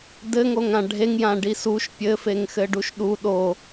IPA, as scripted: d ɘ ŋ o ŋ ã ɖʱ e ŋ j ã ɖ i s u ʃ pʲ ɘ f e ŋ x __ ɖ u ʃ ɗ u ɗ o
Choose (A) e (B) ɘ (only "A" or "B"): B